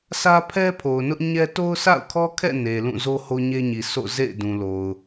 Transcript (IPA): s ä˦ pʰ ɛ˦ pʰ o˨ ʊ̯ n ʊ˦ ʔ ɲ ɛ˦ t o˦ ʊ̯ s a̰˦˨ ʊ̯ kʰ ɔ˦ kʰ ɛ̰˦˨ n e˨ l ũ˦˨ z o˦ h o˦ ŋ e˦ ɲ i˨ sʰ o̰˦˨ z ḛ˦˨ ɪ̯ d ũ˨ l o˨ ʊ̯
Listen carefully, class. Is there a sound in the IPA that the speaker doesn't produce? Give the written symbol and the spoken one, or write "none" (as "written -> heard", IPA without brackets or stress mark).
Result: ŋ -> ɲ